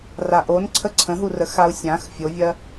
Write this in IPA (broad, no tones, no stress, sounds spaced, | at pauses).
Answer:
r a ʔ o n ǀʰ ə ǀʰ ə̃ ɦ u r ə x a u̯ sʲ ã x fʲ o vʲ ɜ